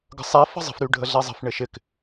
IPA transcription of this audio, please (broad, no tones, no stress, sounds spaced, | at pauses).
ɡ ə̤ sˤ ɛ f ə̤ zˤ ə̤ f ɾ y ɖʱ ə ɮ ɛ zˤ ə̤ f ɳ ɪ ʃ ɪ k